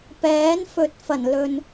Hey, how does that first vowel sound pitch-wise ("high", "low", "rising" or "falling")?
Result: rising